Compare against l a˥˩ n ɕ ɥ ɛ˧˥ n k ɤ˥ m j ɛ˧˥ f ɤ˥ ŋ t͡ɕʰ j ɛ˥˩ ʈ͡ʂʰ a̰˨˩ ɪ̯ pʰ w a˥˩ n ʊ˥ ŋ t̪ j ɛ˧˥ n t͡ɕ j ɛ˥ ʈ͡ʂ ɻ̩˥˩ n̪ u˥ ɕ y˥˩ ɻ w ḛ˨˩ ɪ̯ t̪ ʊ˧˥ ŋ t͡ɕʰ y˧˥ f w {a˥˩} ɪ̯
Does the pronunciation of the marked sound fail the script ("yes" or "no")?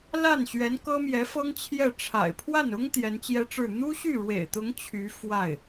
no